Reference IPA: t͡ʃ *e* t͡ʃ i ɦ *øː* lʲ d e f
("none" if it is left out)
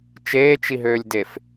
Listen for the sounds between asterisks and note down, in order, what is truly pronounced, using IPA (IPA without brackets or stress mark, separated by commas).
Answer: eː, øː